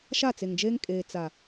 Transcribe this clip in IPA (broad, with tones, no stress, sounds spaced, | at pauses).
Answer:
ʃ a˦˨ t͡s e˨ ŋ d͡ʒ eː˦ ŋ kʼ eː˨ t͡s a˨